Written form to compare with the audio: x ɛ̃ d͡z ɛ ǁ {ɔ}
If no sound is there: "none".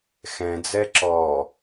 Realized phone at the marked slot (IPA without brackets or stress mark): ɔ